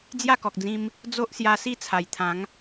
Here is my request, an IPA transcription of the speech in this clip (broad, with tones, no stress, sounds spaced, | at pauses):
d͡z j a˥˧ k ɔ˨ k̚ d͡z ĩ˧ m | d͡z o˦ ʔ s j a˧ s i˥˧ t͡sʰ a˨˩ j t̪ʰ ã˨˦ ŋ